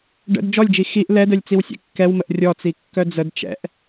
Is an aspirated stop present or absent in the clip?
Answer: absent